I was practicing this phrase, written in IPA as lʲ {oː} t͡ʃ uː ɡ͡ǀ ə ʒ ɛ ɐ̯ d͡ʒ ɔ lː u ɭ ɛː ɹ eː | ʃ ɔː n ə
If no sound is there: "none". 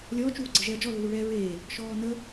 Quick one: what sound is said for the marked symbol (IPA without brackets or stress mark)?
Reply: ɔː